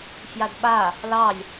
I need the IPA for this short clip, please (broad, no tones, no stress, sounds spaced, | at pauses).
f j a d ɓ a | l ɑ lʲ